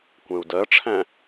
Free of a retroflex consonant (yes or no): no